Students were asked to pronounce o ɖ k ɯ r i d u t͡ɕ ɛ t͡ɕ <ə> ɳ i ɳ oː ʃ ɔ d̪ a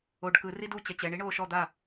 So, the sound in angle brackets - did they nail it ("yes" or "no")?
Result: no